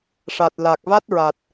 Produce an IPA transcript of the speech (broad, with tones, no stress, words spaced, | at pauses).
ʂa˨˩t̚la˨˩k̚ va˦˥t̚ɹa˨˩t̚